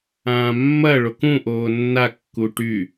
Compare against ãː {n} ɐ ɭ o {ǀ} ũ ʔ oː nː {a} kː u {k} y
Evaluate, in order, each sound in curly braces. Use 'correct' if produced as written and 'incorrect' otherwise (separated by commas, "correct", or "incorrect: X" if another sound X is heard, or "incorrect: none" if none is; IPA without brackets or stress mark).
incorrect: mː, incorrect: k, correct, incorrect: ʈ